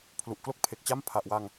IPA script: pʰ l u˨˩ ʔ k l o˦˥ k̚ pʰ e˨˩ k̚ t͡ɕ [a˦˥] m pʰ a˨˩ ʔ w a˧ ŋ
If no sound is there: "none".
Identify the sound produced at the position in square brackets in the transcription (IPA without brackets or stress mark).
a˥˩